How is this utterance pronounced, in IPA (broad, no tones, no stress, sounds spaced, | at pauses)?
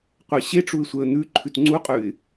qʷ ɛ ɕ e ʈ͡ʂ u ɪ̯ sʷ ɛ ə̯ n̪ ʉ ǃʰ ʉ t ŋ͡ǀ u qʼ ʉ ɪ̯